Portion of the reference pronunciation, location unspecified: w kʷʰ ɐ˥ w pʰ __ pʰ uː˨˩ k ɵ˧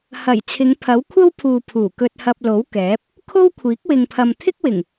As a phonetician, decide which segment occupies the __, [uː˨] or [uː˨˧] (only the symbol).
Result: uː˨